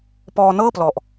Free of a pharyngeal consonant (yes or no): yes